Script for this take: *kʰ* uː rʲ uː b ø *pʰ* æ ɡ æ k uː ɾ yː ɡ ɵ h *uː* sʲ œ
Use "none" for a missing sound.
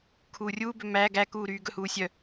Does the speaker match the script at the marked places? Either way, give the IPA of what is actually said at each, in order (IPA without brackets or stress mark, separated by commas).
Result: kʰ, m, uː